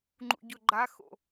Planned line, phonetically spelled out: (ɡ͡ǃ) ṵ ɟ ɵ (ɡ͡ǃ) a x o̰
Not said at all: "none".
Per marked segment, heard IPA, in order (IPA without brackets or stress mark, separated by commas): ŋ͡ǃ, ɡ͡ǃ